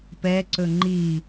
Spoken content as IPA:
pɛǀɵ ŋ͡ǃi

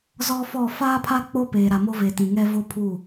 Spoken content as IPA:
zɔ˦fɔ˦˨ faː˦pʰa˦ k͡po˦ peː˨ɾa˨mo˦ve˨ tĩ˨ŋɛ˦ vo˦pʰu˦˨

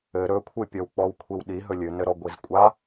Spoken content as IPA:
ɘ ɾɵkʷʰɨ pʲɔwk͡pɔwkʷʰiwɗi ɦɵlʲɨnɘɾɔ ɡʷizkʷʼa

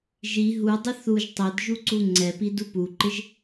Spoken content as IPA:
ʒi ɦudˤɪ θuʒ tˤɛd ʒuǀuŋ͡ǀɛpi dupuǃɪʒ

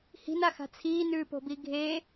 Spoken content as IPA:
hi̤naxa̤ t͡sʰiːnʉːpo̤bi ɡʱe

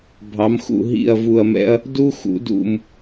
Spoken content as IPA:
bʱɑ˨˦mxṵ˦˨ ɦḭ˦˨ɐ̯ vu˦˨ɐ̯mɛ̰˥ɐ̯ | du˥xṵ˨˦dṵ˦˨m

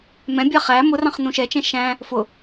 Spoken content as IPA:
mɛ̃bʲɑ χæ mʊrɑ̃χ nũʃɛt͡ʃɛ̃ ʃæ̃ | fʊ

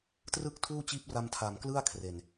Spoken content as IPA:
trɯ˥˩k̚tʰuː˥˩t͡ɕiː˦˥p̚ra˧m tʰa˨˩mklɯ˥˩a̯ kʰre˨˩n

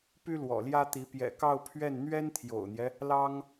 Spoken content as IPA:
py˥lwɔ̰˨˩ljä˥t̪i˧˥ pjɛ̰˨˩kɑ˥˧ʊ̯pʰɥɛ˥˩n n̪ɥɛ˥nt̪ʰjo̰˨˩ʊ̯n̪jɛ˦ | lɑ˥ŋ

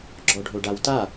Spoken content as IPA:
ɡ͡ǁɔɖʱoɖawta

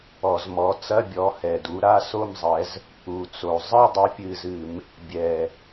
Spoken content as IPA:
ɔ˧˩˧zmɔ˨˦t͡sɐ˧˥˧ bʲɔ˨˦hɛ˨˩du˨˦ ɾa˧˥˧so˥˧mzˤɛ˨˦z | u˨˩t͡so˨˩ zˤɨ˥˧ dˤɐ˨˦pʲɨ˨˩zɨ˧˩˧m | bʲɛ˨˩

